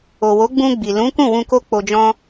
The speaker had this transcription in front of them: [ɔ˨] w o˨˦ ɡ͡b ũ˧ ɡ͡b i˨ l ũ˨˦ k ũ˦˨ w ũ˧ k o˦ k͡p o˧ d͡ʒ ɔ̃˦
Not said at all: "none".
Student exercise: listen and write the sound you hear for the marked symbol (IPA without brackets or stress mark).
o˨